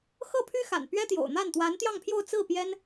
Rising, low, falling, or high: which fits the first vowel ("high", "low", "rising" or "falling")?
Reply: falling